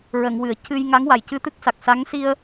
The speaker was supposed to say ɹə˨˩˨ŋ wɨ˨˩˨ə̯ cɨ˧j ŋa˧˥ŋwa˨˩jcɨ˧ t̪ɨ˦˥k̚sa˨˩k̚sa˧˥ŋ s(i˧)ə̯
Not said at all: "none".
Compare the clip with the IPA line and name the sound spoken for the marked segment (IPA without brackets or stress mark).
i˧